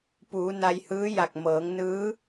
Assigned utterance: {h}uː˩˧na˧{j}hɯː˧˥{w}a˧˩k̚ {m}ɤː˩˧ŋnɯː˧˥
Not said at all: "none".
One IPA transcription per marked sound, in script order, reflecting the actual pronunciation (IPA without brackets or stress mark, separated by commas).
p, j, j, m